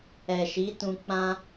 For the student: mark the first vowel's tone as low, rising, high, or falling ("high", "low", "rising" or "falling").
low